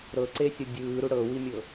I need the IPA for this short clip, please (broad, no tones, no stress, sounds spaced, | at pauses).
ɾ ɤ ǀ e sʲ ɔ dʲ ɯː ɾ u ɽ ɤ w i mʲ ɤ